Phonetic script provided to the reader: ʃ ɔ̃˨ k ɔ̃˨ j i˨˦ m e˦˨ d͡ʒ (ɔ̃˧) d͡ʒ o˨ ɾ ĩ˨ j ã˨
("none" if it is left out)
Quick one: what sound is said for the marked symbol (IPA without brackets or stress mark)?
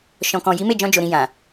ɔ̃˧